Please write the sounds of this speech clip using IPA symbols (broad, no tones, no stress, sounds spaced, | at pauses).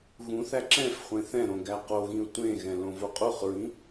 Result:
ɣ ũ θ æ ǁ ɛ̃ f χʷ ẽ θ ɛ̃ ɾ õ ɡ æ q o ɣ ĩ ʊ̯ tʷ ẽ ɣ ɛ̃ l õ v o qʼ u χ ɹ ĩ